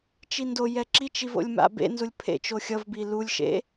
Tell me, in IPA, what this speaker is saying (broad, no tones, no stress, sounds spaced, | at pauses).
t͡ʃ i n d o j ɛ ǁ i t͡ʃ i v o̰ lʲ m a̰ b ḛ n z u lʲ pʰ ḛ t͡ʃ o xʲ ʌ v b i l u lʲ ʃ ḛ